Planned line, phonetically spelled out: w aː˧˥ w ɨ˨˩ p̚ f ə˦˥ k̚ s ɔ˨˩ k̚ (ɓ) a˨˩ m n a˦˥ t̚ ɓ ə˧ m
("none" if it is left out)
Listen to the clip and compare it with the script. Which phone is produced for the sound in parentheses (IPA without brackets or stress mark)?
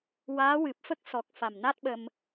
f